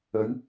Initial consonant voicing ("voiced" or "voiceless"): voiced